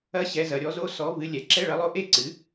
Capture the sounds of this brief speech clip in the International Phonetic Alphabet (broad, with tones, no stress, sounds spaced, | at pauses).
ɐ˧˥˧ ɕ ɛ˩˧ z ɐ˩˧ ɾʲ ɔ˨˥ z o˧˥˧ s ɔ˨˥ v ɨ˨˥ lʲ ɛ˩˧ ǁ ɛ˧˥˧ ɭ ɐ˨˥ lˠ o˧˥˧ ʔ e˥ ǀ ɨ˨˥